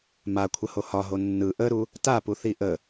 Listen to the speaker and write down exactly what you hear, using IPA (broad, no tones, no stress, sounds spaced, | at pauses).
m a kʷʰ ə h o h ɒ ɦ o nː ɯ ʔ ə ɾ u | t a p u θ i ʔ ə